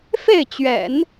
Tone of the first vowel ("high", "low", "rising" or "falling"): falling